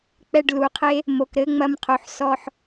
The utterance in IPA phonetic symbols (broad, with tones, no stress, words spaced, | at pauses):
k͡pɛ˧ɖlu˨qʰe˦ | mo˨kɾɘ˨˦ŋ͡mɐ˧m qʰo˨ħ sɔ˧ħ